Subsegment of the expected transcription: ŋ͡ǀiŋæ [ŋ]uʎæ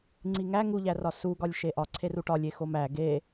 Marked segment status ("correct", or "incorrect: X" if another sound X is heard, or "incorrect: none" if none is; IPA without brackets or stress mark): correct